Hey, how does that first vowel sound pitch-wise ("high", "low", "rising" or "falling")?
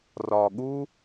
low